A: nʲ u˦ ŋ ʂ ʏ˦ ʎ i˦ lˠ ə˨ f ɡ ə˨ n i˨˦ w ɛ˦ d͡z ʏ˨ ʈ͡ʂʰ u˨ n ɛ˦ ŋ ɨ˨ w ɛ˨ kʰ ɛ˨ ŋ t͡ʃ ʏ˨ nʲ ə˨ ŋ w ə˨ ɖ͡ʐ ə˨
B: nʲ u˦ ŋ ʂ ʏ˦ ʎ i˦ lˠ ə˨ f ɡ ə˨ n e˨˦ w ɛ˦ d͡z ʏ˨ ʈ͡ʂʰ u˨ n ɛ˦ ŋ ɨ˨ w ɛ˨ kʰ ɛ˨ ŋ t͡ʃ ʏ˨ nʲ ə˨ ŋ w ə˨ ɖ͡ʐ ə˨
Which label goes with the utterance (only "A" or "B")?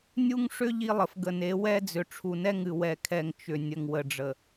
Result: B